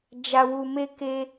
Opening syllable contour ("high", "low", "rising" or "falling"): low